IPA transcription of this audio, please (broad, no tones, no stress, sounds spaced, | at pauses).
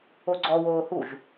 o ɡ͡ǀ ɔ w oː h u ʒ